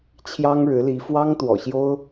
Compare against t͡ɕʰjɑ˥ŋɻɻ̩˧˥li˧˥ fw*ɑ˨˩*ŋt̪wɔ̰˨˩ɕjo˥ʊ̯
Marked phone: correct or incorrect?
incorrect